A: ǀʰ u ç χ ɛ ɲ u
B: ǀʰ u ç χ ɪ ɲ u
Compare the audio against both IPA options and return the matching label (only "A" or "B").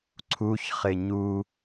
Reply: B